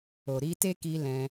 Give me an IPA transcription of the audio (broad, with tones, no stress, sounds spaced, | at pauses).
o˨ ɾ i˧ t e˦ k i˧ l ɛ̃˧